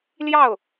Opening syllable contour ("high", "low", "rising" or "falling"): falling